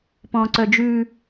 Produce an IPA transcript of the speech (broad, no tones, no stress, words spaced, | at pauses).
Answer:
pɔ̃ǀœd͡ʒʉ